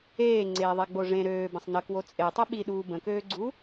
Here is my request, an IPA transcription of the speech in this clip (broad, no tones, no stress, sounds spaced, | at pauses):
eː ŋ͡ǀ eː ðˤ e ɡ͡b o ʐ ẽ ɾ øː b ə̃ sˤ n ə k w o t͡sʼ e tˤ i ɓ i ɗ uː b ə̃ k øː ɡ͡ǀ u